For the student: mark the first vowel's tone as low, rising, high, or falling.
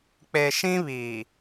low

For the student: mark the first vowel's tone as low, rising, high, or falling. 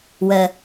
low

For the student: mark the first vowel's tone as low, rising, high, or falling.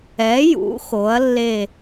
rising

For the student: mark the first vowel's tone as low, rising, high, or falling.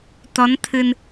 rising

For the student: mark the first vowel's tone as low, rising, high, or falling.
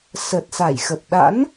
low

